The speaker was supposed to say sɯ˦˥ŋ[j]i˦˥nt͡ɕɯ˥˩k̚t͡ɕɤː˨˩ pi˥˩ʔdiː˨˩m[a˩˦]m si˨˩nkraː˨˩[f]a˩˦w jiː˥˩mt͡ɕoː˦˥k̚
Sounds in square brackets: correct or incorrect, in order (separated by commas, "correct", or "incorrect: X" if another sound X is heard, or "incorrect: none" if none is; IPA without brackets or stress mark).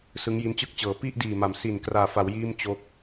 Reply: correct, correct, correct